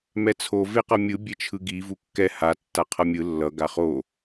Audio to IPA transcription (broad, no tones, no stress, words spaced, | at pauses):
mɛt͡sʰo veqʌmʲɯ bʲet͡ʃʰɯɡi vukːɛ ha tːaqʰʌmʲɯ lːʌ ɡaχo